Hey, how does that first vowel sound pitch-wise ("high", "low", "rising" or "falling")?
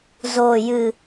low